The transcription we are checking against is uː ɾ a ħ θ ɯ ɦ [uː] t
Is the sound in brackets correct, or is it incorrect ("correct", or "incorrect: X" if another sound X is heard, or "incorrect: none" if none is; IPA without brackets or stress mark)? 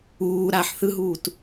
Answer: correct